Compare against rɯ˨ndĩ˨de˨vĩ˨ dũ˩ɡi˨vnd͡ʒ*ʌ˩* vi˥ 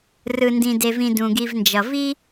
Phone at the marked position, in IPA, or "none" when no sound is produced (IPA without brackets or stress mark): ʌ˩